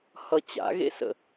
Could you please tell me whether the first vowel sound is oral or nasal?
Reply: oral